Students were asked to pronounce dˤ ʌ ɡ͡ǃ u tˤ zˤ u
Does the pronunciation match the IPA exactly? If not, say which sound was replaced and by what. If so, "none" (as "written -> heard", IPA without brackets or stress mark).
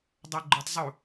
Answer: none